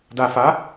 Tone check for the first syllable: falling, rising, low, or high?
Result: low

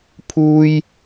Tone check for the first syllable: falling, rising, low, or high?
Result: high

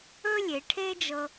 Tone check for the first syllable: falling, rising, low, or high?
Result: high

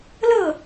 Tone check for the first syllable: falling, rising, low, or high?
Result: falling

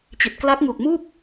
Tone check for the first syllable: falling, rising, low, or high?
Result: low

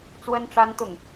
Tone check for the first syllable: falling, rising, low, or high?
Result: high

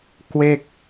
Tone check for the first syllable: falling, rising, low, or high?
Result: falling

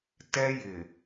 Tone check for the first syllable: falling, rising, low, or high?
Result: high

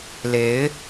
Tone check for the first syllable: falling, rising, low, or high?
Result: rising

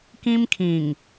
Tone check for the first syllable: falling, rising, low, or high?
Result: high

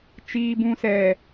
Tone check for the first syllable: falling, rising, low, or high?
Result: low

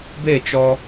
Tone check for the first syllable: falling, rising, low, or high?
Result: falling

